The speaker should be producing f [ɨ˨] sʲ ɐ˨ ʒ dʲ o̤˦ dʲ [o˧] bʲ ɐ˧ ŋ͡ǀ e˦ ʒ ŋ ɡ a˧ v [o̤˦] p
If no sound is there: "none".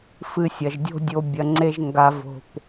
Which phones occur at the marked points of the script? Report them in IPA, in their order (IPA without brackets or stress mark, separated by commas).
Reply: ɨ˧, o˧, o̤˧